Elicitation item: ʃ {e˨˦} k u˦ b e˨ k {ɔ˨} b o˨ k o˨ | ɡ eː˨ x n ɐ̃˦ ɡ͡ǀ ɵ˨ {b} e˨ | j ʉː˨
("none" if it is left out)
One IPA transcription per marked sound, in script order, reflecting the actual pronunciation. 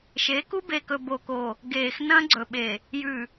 e˨˦, ɵ˨, ɓ

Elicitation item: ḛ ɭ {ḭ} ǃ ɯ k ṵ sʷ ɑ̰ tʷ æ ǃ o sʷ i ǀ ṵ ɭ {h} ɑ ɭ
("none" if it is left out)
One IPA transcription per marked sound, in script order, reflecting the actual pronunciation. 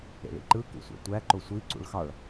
ḭ, x

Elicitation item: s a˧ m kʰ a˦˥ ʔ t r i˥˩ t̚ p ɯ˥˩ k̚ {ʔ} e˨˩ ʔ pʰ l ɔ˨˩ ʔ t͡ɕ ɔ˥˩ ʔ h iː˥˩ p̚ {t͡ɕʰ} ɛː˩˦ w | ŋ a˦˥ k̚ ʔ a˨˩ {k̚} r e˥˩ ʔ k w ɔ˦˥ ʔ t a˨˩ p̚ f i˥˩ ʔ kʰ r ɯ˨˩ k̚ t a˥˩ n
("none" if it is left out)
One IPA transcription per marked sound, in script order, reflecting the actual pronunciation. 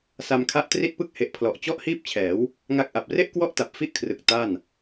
h, t͡ɕʰ, p̚

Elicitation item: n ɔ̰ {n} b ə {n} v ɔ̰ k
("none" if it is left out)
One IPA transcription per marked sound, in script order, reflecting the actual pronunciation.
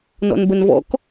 n, n

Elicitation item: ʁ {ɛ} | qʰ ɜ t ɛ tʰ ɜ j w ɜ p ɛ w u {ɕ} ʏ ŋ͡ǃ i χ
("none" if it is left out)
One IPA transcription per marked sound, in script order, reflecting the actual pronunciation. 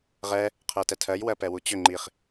ɛ, t͡ɕ

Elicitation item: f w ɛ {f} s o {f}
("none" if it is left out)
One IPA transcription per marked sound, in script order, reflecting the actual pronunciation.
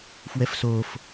f, f

